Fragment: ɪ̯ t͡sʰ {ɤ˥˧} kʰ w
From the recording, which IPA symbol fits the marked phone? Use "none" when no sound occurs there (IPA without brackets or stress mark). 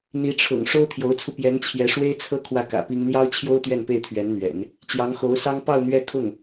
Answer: ɤ˥